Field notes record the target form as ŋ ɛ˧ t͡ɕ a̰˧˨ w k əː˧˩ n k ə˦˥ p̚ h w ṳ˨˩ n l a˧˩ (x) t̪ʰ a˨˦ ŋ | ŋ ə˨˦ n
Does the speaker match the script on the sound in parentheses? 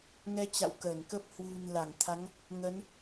no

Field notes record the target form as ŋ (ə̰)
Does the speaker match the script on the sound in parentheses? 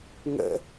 yes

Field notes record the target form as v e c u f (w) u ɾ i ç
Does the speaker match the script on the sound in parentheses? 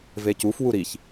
yes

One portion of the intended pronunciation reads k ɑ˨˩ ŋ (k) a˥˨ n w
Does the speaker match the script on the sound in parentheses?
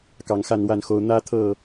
no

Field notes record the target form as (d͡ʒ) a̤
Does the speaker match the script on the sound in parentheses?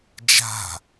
yes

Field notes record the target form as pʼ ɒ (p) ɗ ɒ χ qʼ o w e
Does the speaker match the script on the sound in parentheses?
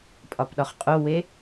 yes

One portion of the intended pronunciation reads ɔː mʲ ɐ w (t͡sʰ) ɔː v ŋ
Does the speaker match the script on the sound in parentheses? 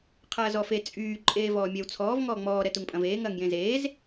yes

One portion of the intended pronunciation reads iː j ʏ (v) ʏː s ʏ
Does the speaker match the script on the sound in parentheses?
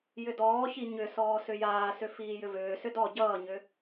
yes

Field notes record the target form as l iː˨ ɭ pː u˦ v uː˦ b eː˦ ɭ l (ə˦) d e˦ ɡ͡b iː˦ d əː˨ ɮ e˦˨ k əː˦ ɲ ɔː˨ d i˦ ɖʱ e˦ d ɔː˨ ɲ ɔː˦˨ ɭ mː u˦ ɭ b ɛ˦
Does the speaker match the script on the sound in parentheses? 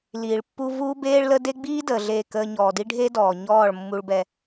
yes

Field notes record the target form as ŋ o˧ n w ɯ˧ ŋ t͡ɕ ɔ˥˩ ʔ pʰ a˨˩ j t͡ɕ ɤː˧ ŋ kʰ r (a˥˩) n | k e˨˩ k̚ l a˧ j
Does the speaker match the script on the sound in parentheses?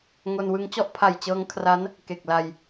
no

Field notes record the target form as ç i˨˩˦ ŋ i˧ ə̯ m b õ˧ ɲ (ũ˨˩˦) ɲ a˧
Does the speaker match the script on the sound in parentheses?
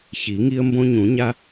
yes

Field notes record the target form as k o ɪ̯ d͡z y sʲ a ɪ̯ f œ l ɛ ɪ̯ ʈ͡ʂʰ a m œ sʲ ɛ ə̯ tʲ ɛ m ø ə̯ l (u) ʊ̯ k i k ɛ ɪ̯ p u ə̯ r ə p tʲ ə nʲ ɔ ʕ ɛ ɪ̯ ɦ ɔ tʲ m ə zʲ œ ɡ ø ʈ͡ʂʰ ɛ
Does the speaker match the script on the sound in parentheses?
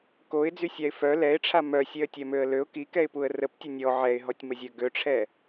no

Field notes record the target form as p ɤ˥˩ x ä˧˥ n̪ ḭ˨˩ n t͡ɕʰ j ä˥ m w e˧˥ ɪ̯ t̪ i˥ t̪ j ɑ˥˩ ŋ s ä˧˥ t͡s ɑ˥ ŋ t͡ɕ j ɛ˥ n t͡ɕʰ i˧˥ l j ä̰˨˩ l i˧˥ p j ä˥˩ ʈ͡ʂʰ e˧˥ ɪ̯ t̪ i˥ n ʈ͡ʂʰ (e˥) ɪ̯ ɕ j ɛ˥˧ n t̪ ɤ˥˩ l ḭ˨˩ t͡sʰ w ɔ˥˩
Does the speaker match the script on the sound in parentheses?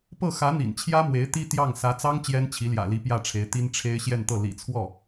yes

